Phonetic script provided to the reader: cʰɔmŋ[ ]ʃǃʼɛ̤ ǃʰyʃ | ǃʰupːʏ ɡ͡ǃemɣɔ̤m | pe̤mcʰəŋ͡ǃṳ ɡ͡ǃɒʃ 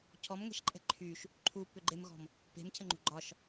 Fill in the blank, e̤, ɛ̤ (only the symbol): ɛ̤